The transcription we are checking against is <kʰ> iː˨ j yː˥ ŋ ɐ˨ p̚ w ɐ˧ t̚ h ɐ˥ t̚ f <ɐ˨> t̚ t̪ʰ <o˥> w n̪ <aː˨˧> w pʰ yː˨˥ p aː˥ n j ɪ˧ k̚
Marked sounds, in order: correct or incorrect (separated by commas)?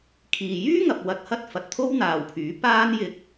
correct, correct, correct, incorrect